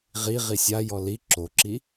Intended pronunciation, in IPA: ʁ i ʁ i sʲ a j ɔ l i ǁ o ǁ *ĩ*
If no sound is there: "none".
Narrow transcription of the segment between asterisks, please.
i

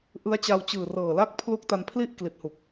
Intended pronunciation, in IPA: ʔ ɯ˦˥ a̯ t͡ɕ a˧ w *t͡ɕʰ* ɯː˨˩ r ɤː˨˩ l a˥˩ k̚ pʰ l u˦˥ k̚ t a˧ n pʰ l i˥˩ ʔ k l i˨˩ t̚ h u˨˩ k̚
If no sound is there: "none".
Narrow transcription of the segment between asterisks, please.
t͡ɕ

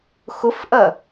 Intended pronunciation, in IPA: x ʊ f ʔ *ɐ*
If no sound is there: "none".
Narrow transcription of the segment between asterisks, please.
ɐ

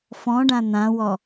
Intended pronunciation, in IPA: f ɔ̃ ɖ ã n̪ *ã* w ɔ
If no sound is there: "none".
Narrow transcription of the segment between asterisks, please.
ã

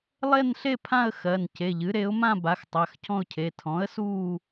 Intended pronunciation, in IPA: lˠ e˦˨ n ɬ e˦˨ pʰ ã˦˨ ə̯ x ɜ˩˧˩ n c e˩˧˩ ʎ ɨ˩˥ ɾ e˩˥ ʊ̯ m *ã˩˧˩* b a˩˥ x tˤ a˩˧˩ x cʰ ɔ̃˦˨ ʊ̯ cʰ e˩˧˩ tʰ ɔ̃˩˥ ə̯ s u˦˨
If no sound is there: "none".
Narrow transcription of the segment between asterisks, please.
ã˦˨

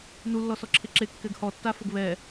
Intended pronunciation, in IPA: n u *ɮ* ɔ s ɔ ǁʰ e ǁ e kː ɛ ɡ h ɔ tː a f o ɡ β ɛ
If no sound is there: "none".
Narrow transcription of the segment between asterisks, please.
lː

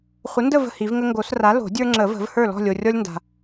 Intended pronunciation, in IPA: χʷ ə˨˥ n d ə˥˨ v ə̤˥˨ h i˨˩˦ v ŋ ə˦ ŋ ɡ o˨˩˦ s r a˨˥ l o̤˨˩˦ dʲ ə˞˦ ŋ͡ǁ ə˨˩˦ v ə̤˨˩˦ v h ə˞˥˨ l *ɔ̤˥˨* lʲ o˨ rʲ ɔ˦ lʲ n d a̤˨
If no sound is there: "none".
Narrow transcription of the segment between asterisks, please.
ɔ̤˥˨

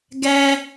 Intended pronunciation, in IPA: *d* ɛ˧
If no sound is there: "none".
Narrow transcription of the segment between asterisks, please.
ɡ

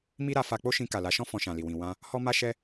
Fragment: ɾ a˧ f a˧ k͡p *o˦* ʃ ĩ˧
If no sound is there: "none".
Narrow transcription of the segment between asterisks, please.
o˦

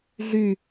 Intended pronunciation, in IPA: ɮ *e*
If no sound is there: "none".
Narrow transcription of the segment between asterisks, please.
y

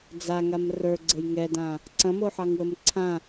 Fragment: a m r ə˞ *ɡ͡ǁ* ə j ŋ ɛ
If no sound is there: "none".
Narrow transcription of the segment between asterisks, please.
ɡ͡ǀ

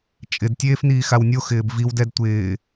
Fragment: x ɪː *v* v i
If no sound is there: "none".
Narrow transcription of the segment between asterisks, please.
b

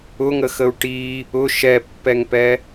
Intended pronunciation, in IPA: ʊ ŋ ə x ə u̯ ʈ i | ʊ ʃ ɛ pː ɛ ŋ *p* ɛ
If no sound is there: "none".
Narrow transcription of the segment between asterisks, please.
p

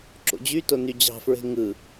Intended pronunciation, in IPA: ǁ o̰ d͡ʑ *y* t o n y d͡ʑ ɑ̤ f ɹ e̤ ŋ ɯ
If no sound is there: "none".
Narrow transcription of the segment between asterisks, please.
y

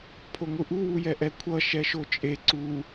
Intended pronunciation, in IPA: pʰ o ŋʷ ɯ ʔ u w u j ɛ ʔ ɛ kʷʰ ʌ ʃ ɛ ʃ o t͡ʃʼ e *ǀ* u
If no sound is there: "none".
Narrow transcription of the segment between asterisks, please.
ǀ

